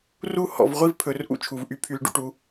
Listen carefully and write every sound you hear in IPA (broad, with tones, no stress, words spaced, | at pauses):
ru˥ hɔ̰˩˧vʁʷi˥˧vpʰɵ˩˧rʔṵ˥˧ t͡ʃʰu˩˧vʔy˧pʰy˧l ɖṵ˧ʈu˩˧